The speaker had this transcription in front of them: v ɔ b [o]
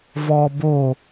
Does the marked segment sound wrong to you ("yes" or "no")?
no